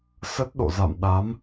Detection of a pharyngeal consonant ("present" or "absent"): absent